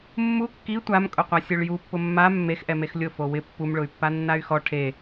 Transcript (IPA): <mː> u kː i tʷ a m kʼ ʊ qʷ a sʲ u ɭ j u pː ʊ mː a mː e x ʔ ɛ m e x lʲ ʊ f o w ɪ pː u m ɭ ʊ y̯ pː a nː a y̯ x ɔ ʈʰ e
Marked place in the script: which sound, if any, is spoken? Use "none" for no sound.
mː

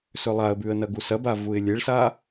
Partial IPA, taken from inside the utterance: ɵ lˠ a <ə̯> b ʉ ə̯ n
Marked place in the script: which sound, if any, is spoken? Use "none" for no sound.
ə̯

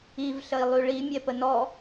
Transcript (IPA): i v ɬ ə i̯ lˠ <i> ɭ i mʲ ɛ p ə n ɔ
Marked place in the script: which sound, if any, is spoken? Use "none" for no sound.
y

